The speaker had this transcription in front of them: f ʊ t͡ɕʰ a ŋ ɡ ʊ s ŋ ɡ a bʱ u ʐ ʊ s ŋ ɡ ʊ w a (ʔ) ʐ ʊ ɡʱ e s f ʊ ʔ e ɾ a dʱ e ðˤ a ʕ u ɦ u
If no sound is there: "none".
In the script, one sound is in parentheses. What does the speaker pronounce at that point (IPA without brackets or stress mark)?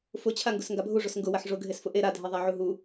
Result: ħ